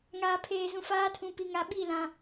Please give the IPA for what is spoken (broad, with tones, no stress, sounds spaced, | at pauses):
ŋ aː˨ pʰ eː˨ z ũ˨ f aː˦ tʰ ũ˨ p i˨ ŋ a˨ ɓ i˦˨ l ã˨